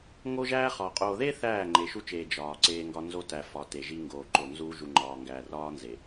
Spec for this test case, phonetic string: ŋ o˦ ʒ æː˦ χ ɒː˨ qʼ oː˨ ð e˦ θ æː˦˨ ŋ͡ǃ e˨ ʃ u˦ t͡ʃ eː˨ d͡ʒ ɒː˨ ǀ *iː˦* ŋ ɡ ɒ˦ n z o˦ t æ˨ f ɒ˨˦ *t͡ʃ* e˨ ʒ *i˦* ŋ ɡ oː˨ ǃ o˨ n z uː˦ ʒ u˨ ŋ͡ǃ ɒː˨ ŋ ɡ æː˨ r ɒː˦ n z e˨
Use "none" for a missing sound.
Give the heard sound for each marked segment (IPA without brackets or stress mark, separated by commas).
eː˦, t, i˦